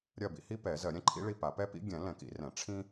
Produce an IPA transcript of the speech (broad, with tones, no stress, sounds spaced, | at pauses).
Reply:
ɾʲ ɜ˥˨ b ḭ˥ h i˥ p ɛ˨˩˦ z ɜ˨˩˦ ɾʲ ɛ̃˥ ǃʰ ḭ˥ ɭ i˥˨ p a˨˩˦ p ɛ˥ p ḭ˥ ɡʲ ɛ̃˨˩˦ l ɛ̃˨˩˦ k ḭ˨˩˦ r ɛ̃˨˩˦ ʈ͡ʂʰ ĩ˥